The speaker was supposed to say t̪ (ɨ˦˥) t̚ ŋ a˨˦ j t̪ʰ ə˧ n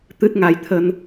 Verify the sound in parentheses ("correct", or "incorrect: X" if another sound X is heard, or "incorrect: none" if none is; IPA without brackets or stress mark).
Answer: correct